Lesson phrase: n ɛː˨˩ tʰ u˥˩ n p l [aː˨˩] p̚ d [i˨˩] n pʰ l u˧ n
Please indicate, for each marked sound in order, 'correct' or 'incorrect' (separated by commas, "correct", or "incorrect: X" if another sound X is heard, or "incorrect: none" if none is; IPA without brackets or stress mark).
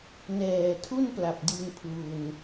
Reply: incorrect: a˨˩, incorrect: i˧